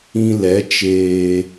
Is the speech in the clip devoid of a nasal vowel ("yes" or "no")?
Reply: no